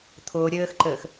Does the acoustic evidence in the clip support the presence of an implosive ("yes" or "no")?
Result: no